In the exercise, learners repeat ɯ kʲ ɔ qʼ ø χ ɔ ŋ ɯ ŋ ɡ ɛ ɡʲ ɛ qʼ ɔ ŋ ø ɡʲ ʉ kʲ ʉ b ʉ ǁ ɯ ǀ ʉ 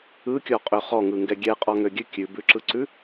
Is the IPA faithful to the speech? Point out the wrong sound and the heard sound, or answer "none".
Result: none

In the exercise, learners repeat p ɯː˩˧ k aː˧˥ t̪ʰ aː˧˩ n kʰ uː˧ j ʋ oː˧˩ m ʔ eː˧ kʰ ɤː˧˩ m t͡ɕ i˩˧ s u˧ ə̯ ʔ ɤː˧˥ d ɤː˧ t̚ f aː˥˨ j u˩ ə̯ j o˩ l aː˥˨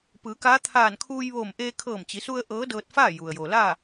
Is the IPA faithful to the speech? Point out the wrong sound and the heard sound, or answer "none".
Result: none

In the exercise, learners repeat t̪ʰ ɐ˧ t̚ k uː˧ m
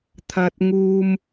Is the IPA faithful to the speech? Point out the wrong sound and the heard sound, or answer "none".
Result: k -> ŋ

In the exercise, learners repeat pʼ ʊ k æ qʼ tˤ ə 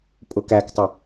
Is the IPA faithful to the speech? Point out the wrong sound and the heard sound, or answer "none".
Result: qʼ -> k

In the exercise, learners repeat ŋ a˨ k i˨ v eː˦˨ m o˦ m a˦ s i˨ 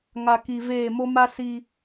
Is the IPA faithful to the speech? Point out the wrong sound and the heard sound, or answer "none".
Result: none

